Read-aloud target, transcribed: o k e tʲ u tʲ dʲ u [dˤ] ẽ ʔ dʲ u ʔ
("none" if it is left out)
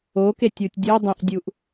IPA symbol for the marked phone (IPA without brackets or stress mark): dˤ